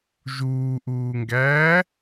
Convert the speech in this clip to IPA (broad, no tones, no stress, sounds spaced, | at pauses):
ʒ uː ʔ uː ŋ ɡ æː